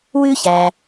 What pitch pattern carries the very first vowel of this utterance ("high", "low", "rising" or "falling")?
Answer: high